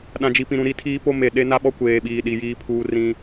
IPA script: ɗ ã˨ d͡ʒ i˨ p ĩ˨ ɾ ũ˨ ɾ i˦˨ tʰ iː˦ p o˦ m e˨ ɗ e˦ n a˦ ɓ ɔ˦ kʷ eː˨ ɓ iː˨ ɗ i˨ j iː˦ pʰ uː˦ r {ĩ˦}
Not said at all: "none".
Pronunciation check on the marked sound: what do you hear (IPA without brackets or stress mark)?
ĩ˦